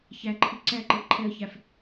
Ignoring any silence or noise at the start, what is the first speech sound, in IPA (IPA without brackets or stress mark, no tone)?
ç